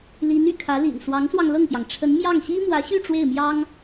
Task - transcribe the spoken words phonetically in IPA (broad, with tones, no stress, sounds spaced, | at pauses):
l i˧˥ n y̰˨˩ kʰ ä˧˥ l ḭ˨˩ n s w ɑ˧˥ ŋ s w ɑ˧ ŋ l ɤ˥˩ ŋ p j ɑ˩ ŋ ʈ͡ʂʰ ə˧˥ n m j ɑ˥˩ ŋ ɕ i˥ m w ä˧˥ ɕ y˥˧ ʈ͡ʂ w e˥˩ ɪ̯ m j ɑ˥ ŋ